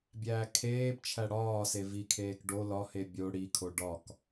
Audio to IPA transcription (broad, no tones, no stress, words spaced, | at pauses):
bʲæːkʰeːbt͡ʃʰæ ɽɒːse vikʰeːk ɖo lɒhe bʲo ɽikʰo ɖɒk